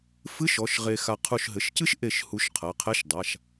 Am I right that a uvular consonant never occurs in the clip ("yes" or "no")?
no